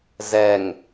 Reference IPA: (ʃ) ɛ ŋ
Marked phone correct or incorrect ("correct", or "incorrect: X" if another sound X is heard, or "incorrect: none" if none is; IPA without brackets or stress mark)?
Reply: incorrect: z